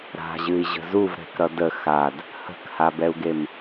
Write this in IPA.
ɾ a̤ ʑ ɨ i̯ ʑ ə̤ z u v ɾ ɛ̤ k ɾ ʌ d ə x a d | h ə̤ k h a b ɛ u̯ ɡ e m

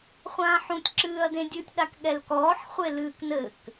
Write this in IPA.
χʷ ãː ħ ũ tʲ ǁ ɨː ɐ̯ d ẽ dʲ ɨ tʲ ɗ a k ɠ ɛ l k ɔː ħ χʷ e l ɨː k n ɘ k

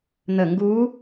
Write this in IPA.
n̪ ə ŋ ɡ u

